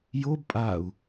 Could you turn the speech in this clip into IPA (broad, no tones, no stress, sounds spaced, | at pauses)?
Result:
j o b pʼ a u̯